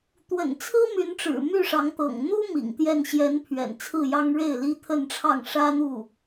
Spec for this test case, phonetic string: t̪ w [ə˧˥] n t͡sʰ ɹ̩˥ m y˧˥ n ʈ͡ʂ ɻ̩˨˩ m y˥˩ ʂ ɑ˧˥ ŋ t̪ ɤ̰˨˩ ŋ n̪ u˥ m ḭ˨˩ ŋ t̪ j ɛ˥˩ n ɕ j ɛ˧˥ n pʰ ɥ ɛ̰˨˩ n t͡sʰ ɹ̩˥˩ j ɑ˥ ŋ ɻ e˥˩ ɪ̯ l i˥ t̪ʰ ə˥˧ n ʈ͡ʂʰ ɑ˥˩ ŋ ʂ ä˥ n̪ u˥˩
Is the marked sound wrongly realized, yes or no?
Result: yes